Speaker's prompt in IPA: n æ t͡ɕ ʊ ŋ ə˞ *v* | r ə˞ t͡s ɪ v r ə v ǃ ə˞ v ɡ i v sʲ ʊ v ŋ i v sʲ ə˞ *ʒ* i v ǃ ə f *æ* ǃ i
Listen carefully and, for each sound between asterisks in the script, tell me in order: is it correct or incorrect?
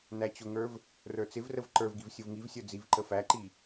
correct, incorrect, correct

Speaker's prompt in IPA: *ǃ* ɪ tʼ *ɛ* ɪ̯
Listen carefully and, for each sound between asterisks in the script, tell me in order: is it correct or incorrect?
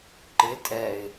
correct, correct

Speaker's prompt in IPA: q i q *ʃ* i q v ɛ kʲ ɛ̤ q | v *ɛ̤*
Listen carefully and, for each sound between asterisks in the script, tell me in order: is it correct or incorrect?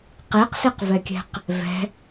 incorrect, correct

